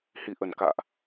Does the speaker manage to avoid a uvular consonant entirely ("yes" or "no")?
yes